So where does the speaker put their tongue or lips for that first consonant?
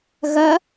velum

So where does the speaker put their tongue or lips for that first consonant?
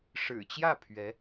retroflex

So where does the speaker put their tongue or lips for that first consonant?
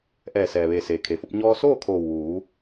throat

